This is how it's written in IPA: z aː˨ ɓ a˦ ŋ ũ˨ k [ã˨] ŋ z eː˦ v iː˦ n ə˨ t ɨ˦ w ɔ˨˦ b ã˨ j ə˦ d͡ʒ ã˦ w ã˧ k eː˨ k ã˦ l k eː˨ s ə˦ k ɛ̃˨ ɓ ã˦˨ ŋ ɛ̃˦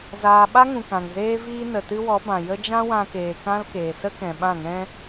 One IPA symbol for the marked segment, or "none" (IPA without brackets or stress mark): ã˨